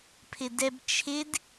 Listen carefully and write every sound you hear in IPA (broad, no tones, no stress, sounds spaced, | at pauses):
pʰ ɪ d ɛ b t͡ʃʰ ɪ d